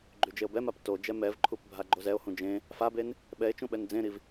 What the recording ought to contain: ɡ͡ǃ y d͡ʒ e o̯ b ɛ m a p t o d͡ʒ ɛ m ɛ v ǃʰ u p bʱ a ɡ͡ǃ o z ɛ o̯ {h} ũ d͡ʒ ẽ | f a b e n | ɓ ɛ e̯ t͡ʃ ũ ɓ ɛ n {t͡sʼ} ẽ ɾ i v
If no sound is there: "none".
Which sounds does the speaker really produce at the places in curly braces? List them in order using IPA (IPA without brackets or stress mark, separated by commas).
h, d͡z